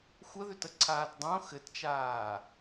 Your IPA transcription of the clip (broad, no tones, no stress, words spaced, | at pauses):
xʷəðʏtəǀʰaːt dˤõ xɘtt͡ʃaː